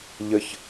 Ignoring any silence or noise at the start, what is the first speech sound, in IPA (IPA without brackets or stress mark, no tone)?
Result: ʎ